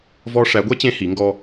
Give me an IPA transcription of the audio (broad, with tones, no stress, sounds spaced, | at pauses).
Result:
v ɔ˥ ʂ æ˧˥ ɡʷ ɛ˥ t͡ɕ ẽ˧˥ h i˩˧ ŋ ɡ ɔ˧